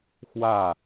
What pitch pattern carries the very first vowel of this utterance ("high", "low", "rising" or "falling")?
falling